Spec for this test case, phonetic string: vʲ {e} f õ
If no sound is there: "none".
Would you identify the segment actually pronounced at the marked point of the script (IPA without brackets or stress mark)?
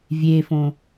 e